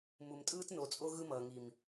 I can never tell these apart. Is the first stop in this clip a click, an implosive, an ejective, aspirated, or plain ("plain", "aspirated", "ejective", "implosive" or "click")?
ejective